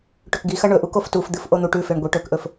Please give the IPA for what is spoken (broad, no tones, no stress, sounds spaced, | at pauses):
ʈ ɵ k ɡ i x ɐ ɳ ɵ ʔ u k o f t u f d̪ ɨ f ʔ o n̪ u ʈ ʉ f e ɳ ɡʷ e ʈ ɵ k ʔ ɵ f